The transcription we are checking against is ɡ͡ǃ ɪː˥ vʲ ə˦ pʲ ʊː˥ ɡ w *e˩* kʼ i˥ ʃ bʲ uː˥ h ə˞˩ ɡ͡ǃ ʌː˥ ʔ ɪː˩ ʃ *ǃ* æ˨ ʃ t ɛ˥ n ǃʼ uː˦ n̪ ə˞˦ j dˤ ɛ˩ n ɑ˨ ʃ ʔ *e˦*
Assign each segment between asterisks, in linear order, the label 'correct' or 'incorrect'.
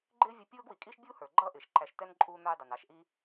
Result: incorrect, correct, incorrect

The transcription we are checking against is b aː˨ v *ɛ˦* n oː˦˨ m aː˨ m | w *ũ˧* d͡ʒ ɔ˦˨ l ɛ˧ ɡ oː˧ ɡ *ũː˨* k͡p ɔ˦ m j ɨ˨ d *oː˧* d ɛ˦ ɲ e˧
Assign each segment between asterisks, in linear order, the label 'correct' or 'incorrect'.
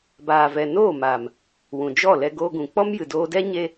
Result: incorrect, incorrect, incorrect, correct

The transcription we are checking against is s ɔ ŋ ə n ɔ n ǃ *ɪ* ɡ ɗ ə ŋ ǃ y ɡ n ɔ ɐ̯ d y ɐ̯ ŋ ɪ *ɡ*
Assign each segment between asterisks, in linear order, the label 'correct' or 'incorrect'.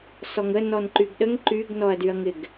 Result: incorrect, correct

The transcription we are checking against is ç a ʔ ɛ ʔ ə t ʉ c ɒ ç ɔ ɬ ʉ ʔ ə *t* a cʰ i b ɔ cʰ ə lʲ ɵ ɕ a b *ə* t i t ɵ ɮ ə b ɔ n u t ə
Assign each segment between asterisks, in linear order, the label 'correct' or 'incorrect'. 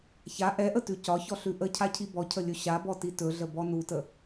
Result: incorrect, incorrect

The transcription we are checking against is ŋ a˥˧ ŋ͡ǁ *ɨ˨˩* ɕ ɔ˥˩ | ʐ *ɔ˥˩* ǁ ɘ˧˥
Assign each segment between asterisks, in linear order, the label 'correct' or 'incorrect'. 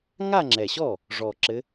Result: incorrect, incorrect

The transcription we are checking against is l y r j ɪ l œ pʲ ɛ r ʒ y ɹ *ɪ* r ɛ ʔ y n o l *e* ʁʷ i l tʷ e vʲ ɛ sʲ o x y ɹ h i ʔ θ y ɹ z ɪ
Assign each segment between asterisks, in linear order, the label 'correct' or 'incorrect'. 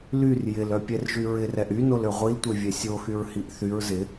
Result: correct, incorrect

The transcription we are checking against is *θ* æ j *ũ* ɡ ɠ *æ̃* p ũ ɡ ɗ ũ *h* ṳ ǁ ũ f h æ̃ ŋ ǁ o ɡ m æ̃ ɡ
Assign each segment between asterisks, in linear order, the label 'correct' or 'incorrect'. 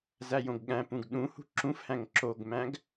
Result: incorrect, incorrect, correct, correct

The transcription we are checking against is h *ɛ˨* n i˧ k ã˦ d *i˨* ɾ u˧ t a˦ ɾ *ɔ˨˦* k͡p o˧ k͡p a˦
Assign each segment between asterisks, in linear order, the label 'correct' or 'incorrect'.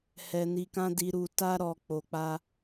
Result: incorrect, incorrect, incorrect

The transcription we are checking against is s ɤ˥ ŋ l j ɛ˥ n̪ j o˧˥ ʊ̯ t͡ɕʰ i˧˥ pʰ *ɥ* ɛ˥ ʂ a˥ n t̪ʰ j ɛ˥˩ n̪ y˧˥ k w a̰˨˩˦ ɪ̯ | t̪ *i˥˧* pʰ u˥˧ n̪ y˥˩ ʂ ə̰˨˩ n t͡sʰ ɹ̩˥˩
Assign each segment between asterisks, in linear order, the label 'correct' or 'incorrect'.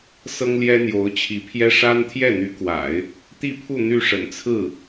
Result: incorrect, correct

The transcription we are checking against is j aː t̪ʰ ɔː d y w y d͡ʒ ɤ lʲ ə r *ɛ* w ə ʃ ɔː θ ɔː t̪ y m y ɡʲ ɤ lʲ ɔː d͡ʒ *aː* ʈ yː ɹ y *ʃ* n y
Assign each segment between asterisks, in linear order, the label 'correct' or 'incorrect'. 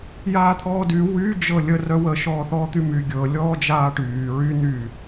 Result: incorrect, correct, incorrect

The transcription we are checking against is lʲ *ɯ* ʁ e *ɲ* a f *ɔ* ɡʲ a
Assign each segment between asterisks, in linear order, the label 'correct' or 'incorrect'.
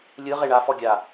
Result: correct, incorrect, correct

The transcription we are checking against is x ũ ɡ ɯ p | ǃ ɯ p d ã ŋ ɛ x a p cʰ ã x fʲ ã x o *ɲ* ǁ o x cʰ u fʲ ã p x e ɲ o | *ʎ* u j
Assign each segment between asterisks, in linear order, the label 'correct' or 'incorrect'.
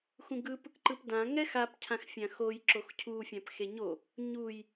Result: incorrect, incorrect

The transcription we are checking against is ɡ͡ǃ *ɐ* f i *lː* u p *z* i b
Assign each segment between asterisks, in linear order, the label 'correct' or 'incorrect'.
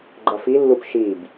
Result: correct, correct, incorrect

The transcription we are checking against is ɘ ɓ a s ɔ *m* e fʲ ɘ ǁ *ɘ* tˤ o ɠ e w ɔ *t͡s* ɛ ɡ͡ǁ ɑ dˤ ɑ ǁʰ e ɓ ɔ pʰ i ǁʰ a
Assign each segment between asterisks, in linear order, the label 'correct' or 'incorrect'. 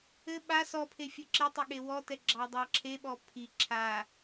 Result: incorrect, incorrect, incorrect

